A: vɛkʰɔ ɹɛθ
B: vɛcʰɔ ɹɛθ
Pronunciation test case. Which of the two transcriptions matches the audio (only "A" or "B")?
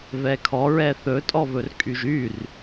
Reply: A